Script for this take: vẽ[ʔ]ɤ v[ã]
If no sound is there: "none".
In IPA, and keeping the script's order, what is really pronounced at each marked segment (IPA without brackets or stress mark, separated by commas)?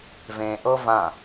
ʔ, ã